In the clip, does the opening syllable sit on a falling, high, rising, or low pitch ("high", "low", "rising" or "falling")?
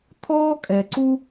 high